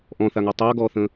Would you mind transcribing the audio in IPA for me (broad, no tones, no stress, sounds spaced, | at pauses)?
ʔ ɔ̃ θ a ŋ ɔ tˤ a ɡ ɔ θ ə̃